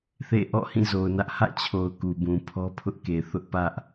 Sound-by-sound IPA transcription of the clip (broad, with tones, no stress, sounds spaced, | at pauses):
θ ḛ˦˨ ʔ ɔ̰˦˨ h ĩ˦˨ z o˨ ʊ̯ n ä˦ ʔ h ä̰˦˨ t͡ɕʰ o˨ ʊ̯ k u˨ b ũ˨ pʰ ɔ˦ pʰ ʊ˦ ʔ k e˨ θ ʊ˦ ʔ p ä˦ ʔ